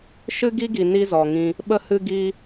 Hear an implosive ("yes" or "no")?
yes